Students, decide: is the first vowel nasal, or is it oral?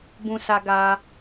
nasal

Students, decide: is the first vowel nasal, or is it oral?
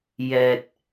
oral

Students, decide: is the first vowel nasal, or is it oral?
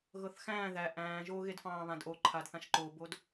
oral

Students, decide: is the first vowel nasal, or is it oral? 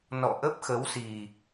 oral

